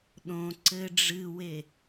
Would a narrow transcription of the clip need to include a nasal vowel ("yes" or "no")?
yes